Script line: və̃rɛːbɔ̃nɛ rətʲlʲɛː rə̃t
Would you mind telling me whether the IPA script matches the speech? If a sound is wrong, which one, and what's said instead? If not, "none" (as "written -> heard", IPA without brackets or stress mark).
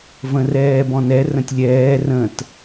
ə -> ə̃